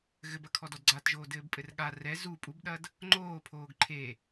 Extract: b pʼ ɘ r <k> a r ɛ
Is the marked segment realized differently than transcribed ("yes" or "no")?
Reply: yes